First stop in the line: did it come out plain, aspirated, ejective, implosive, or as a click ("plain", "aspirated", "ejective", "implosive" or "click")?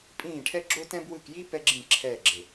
ejective